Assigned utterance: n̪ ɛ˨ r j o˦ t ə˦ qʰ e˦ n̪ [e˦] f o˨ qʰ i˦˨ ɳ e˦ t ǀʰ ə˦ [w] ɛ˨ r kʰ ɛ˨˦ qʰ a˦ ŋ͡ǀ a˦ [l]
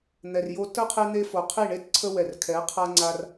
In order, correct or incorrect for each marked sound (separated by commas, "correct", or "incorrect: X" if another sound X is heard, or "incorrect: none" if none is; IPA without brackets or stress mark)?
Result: correct, correct, incorrect: r